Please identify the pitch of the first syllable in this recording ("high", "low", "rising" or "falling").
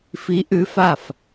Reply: rising